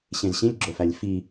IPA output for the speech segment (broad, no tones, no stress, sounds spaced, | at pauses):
ɕ ẽ z ɕ ĩ lʲ ɡ͡ǁ o f æ lʲ f i